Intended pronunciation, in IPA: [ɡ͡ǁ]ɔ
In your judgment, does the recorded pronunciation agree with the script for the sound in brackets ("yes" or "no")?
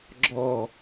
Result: yes